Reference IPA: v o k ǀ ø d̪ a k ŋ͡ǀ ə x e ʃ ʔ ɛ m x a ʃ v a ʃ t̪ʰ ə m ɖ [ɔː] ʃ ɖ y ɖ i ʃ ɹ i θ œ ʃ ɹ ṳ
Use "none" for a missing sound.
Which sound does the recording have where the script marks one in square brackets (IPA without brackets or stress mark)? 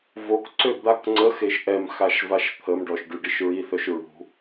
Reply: ɔ